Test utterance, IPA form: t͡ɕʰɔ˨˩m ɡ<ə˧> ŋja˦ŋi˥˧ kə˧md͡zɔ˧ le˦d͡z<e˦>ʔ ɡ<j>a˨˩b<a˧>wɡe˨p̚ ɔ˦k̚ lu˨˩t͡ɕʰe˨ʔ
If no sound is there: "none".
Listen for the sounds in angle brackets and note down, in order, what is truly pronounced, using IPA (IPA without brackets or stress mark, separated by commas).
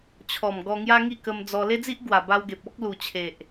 ɔ˧, i˦, w, a˧